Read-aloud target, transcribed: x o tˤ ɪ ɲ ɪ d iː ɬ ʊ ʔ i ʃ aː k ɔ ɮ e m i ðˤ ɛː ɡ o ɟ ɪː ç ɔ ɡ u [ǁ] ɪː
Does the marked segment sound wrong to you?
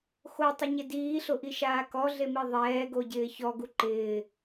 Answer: yes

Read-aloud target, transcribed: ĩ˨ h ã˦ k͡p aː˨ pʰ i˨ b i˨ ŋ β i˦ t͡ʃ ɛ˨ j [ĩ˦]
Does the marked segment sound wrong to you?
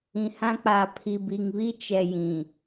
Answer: yes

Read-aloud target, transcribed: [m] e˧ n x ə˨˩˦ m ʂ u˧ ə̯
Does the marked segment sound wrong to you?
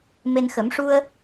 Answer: no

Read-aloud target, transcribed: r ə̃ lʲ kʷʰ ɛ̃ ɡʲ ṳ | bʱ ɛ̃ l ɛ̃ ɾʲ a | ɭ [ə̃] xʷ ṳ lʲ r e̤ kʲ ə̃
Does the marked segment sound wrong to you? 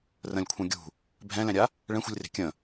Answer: yes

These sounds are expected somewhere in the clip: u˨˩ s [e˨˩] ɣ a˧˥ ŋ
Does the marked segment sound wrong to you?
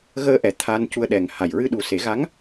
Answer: yes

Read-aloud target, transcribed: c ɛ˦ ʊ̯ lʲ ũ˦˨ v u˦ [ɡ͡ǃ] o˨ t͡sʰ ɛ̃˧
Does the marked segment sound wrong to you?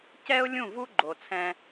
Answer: no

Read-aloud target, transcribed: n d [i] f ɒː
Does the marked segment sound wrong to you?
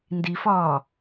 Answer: no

